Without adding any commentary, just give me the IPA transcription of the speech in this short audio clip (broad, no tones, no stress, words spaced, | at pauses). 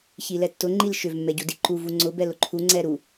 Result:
çilɛtːʊ ŋ͡ǃilʃʏv mːɛɟudiǃu vuŋ͡ǀʊ bɛlʊǃʰu ŋ͡ǀɛɾu